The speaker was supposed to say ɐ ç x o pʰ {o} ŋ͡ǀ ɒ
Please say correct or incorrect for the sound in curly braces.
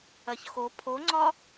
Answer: correct